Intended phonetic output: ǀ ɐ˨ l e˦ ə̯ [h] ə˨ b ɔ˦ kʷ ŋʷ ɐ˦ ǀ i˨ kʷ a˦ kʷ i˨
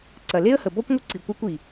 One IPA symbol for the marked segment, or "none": h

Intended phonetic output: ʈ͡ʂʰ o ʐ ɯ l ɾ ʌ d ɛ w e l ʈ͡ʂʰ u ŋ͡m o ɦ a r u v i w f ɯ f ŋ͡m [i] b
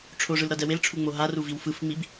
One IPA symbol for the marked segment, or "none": i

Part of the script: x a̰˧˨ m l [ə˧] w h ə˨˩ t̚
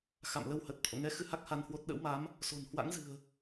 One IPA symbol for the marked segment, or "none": ə˧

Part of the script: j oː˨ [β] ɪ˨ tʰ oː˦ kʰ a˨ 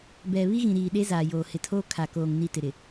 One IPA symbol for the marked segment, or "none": h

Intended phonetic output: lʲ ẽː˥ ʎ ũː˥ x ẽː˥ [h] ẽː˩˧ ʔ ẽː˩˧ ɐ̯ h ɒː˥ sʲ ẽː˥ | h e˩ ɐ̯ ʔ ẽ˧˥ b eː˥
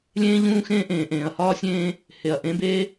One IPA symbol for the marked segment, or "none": ʔ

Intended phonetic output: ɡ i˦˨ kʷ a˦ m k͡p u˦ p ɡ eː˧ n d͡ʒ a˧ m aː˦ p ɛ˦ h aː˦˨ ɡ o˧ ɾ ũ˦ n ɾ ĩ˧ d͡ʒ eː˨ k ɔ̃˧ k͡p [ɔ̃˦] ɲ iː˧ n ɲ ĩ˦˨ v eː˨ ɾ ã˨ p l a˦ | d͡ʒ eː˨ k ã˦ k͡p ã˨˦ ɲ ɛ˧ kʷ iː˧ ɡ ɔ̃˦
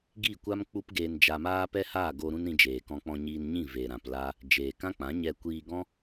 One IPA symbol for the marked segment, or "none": ɔ̃˧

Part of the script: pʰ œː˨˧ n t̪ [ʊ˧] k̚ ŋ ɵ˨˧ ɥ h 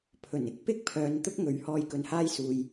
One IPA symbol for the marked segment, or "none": ʊ˥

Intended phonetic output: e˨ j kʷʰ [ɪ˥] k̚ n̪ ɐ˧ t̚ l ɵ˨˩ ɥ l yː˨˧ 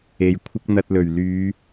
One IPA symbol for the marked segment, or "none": ɪ˥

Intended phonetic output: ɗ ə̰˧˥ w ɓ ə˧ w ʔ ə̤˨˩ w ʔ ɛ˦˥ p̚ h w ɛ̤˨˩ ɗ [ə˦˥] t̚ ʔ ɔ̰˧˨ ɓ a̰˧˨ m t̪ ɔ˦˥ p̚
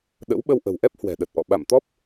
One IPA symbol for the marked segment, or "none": ə˨˩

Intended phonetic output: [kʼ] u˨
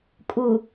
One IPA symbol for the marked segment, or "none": kʼ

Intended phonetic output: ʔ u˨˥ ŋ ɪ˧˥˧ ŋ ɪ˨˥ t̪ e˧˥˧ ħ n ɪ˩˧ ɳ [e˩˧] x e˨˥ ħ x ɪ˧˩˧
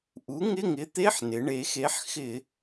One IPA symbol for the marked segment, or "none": e˩˧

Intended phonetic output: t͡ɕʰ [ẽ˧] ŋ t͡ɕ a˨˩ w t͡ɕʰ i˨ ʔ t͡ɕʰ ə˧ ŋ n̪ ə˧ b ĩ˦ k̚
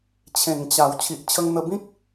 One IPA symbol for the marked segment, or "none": ẽ˨˩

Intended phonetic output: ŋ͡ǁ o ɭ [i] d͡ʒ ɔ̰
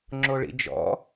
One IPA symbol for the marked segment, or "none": ḭ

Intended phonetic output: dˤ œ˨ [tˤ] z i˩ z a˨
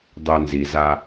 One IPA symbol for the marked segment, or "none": n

